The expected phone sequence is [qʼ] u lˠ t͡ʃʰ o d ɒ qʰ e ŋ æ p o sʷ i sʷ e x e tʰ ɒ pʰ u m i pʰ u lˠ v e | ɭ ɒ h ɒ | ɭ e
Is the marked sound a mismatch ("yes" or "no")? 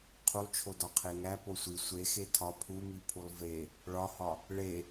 yes